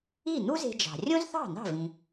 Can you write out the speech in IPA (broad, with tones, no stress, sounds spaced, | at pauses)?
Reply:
i˥˩ n̪ u˥ z e̤˧ d͡ʒ ɑ̤˩ rʲ õ˥ z θ ɑ̤˥˩ n̪ ɑ̤˥˩ v ĩ˩